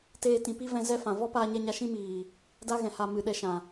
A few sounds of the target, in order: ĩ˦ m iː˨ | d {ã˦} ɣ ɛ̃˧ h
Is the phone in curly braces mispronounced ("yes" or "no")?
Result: yes